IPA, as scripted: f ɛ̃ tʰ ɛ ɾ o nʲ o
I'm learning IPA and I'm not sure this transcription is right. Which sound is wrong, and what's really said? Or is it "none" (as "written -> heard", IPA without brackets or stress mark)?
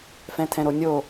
ɛ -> ɛ̃